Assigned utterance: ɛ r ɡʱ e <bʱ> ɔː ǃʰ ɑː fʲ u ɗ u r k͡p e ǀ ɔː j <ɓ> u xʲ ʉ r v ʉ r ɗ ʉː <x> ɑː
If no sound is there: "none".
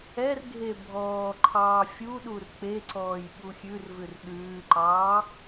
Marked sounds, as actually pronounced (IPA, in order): bʱ, ɓ, ǃ

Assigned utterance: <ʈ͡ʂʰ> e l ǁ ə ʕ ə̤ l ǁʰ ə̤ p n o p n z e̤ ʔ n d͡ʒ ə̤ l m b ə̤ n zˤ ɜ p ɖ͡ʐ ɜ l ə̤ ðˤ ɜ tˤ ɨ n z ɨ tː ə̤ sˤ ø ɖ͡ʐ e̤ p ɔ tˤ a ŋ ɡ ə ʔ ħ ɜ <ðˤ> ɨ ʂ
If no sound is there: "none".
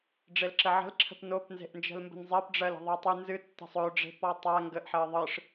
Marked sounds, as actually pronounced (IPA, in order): ɖ͡ʐ, ðˤ

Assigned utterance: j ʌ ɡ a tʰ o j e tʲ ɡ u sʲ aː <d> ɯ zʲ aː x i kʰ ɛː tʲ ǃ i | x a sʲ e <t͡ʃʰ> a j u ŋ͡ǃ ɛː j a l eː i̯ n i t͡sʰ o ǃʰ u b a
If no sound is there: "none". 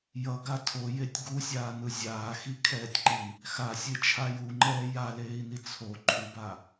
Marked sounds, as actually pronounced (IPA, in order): n, t͡ʃʰ

